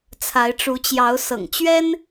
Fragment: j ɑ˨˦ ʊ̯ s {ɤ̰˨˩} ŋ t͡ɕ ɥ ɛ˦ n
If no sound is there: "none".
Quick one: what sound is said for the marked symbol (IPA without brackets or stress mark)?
ɤ̰˨˩